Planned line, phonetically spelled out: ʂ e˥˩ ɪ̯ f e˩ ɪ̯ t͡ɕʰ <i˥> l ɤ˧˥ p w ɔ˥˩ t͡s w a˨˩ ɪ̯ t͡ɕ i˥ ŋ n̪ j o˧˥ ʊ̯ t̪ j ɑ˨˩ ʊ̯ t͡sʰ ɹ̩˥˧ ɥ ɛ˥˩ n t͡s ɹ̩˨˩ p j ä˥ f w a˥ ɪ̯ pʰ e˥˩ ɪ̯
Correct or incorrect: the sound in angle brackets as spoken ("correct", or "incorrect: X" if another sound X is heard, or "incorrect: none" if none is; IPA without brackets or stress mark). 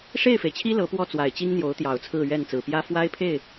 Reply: correct